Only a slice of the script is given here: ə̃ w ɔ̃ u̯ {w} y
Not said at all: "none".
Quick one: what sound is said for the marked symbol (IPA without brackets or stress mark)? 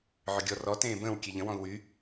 w